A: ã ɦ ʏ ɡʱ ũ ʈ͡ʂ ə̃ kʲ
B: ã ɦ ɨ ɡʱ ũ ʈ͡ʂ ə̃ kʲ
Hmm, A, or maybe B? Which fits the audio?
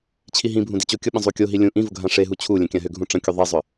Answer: A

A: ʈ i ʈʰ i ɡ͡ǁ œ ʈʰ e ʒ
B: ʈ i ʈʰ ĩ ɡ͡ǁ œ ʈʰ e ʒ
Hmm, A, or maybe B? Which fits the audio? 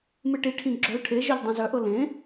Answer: B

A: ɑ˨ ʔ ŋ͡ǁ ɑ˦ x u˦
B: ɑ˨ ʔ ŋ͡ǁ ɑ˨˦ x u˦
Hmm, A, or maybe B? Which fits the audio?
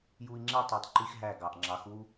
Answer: B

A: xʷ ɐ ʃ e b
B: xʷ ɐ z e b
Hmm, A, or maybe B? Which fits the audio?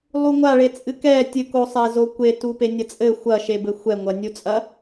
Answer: A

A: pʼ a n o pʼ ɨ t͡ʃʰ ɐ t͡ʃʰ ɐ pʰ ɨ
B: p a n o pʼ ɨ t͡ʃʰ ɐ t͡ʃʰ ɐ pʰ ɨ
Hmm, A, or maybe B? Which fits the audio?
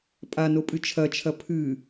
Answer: A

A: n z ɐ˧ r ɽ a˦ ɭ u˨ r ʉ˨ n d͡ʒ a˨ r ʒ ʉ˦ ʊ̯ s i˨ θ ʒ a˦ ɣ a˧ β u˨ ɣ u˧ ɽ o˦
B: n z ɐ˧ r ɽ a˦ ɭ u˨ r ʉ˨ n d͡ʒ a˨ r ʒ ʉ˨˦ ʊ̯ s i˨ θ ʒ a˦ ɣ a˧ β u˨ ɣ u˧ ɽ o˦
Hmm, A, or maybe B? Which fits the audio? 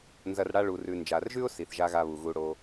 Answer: A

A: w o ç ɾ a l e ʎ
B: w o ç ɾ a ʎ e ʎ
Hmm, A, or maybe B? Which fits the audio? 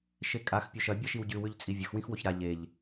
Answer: B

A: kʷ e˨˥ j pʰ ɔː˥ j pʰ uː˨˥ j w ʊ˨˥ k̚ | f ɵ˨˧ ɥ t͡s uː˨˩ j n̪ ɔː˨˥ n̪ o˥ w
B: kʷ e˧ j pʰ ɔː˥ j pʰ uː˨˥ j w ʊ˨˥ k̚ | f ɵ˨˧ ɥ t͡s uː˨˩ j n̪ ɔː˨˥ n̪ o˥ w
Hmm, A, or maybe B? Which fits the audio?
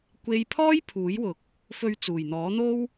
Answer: B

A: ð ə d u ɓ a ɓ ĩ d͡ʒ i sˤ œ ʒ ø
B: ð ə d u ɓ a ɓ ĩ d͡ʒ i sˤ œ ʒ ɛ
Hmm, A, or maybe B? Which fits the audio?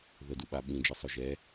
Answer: B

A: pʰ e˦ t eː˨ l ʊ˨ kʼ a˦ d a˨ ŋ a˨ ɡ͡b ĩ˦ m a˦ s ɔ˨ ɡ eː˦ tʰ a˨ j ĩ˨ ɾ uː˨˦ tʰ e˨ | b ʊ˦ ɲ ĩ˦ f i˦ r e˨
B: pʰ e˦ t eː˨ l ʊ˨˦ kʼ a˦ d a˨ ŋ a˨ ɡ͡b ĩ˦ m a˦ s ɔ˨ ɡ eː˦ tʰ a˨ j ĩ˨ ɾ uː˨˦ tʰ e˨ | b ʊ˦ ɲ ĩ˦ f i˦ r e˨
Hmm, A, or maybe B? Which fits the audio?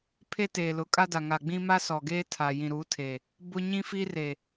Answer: B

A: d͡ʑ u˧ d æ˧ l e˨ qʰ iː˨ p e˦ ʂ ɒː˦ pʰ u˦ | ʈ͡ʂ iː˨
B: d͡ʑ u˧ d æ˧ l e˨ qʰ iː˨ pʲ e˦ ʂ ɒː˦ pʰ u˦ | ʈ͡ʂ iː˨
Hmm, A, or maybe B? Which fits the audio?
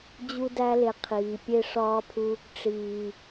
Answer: B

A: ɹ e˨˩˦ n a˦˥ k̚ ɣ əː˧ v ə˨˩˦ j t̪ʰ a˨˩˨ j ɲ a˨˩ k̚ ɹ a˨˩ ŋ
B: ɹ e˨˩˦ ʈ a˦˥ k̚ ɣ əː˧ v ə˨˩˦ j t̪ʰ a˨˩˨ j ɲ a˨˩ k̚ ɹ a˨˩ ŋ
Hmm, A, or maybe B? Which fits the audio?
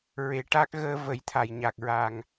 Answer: B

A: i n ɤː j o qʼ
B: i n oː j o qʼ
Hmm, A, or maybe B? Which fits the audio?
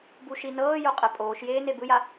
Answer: A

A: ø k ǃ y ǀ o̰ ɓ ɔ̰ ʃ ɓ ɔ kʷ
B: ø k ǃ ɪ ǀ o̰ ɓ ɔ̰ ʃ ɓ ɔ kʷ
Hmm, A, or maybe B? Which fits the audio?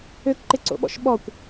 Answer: B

